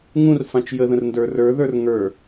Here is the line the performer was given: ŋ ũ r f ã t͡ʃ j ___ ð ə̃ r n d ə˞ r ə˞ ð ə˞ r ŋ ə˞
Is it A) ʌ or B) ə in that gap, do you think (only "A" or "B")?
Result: B